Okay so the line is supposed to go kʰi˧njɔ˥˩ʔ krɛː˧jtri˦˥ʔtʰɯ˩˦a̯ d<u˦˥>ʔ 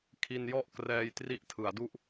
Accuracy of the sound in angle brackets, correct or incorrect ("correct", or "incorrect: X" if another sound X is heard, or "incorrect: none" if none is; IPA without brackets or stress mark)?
incorrect: u˥˩